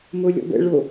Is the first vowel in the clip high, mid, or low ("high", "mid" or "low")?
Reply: mid